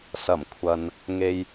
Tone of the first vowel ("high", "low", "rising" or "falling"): low